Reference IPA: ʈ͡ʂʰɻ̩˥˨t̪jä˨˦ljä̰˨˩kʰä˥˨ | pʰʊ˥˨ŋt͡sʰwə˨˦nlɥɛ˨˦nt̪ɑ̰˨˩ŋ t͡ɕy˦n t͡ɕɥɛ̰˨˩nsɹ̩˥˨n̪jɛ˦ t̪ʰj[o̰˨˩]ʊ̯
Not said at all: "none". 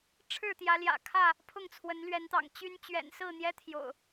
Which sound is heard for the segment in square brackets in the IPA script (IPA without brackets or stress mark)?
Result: o̰˨˩